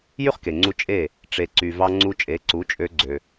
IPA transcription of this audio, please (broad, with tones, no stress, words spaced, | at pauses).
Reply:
jy˥χke˩ŋ͡ǀu˧ t͡ʃʼe˥˩ | ʈ͡ʂe˩ǀy˩vɑ˧ ŋ͡ǀu˧t͡ʃʼe˩˥ǀu˩˥t͡ʃʼø˧ ɡ͡ǀø˩